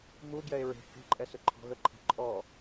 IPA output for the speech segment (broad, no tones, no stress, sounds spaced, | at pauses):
m u ɡ j ɛ e̯ ɹ e̤ h e̤ ǃʼ ɛ s ʏ ǃʰ ɔ̤ ɣ ə ǃʰ e̤ ǃʼ ɔ